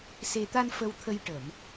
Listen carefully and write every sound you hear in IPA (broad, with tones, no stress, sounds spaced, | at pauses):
s e˧ t̪ a˧ n f ə˧ w t̪ʰ ə˧ j ʈ ə˨˩˨ m